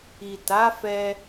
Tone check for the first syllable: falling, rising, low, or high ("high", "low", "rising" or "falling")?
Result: low